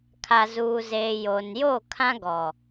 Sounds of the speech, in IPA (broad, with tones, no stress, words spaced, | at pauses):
kʰa˨zuː˨zeː˨ jo˨n jo˦˨kʰã˦ɡɔ˨